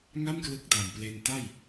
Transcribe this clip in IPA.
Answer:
ŋ a˥˩ m k l ɯ˦˥ k̚ d a˨˩ m p l e˧ n t a˥˩ j

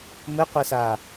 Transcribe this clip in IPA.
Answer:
m ɘ qʷ ɛ s aː

